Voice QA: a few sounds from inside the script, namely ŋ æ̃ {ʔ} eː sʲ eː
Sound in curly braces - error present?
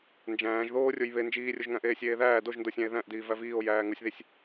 no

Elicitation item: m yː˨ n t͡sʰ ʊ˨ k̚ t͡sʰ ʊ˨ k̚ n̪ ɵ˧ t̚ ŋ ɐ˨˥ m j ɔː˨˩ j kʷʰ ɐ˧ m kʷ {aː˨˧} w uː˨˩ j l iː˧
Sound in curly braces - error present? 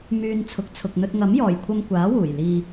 yes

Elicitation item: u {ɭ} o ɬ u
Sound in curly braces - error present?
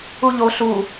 yes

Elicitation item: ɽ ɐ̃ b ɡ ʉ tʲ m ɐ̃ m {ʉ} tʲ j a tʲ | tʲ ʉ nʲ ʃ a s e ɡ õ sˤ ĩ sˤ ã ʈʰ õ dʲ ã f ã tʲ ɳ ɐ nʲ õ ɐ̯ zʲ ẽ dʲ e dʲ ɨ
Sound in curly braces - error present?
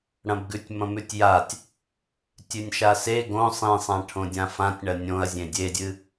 no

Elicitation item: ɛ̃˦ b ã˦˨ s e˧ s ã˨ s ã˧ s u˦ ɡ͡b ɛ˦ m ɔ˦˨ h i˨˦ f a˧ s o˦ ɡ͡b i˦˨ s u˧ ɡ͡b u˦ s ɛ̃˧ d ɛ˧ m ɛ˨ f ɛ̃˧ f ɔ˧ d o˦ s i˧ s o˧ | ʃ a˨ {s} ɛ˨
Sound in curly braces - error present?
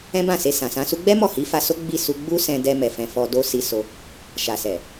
no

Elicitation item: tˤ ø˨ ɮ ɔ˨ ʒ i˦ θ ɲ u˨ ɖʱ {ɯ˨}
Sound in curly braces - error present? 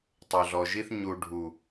yes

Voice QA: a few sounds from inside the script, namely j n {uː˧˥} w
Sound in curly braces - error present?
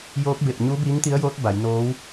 yes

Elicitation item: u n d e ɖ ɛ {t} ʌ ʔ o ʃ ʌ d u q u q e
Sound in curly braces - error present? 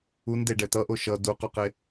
no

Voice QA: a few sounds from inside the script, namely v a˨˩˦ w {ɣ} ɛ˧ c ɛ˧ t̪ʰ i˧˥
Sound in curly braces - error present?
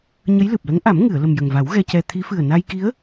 no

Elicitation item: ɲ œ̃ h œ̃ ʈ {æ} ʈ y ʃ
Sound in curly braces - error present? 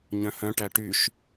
no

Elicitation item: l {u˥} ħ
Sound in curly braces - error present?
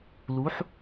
yes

